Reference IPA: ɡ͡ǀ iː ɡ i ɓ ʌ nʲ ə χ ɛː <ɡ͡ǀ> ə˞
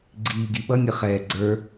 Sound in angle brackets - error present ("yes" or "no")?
no